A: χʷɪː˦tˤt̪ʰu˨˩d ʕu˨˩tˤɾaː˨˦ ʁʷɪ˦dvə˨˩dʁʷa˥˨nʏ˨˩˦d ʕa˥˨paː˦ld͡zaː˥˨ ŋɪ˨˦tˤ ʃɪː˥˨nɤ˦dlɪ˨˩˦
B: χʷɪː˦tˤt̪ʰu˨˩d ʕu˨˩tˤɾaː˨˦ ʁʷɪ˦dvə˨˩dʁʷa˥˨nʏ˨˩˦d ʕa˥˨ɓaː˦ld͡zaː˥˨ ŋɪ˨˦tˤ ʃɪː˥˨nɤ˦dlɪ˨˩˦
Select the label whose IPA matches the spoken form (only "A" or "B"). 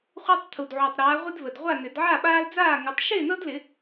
B